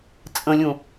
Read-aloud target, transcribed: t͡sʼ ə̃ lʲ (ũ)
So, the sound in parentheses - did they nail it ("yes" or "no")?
yes